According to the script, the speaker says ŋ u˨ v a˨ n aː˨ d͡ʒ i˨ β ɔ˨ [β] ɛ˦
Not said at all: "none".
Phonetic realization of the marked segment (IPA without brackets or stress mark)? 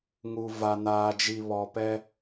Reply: p